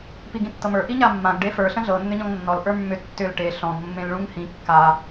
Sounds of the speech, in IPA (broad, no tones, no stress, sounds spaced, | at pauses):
p i ɡ ĩ tː ɤ m ə˞ ʔ i ɲ a mː ã ɡ ɖ e f ə˞ ɬ ə̃ ɮ ɤ nː ʏ ɲ ɔ̃ ŋ nː ɔ l ʔ ə˞ mː ʏ tː ʏ l ʈ e ɬ ɔ̃ ɡ mː ẽ l ɭ ũ ŋ h ĩ kː a